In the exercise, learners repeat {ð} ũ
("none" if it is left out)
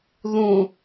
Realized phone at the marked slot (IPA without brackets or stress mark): ð